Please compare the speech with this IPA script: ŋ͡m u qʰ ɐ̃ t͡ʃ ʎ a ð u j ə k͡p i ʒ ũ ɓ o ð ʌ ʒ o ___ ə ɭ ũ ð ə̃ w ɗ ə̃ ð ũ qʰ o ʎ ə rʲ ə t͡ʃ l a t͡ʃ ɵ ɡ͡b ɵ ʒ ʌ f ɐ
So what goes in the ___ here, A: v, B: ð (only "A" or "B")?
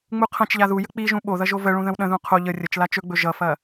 A